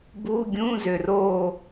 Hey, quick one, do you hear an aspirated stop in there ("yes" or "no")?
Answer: no